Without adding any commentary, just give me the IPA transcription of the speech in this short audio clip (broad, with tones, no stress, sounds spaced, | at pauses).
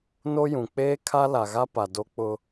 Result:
n o˦ j ũ˨ k͡p eː˦ kʰ a˦ l a˨ ɣ a˦ p a˨ d o˦ k͡p ʊ˦